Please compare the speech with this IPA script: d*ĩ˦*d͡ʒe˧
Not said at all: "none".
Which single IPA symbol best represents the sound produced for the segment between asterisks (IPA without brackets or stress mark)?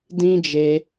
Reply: ĩ˦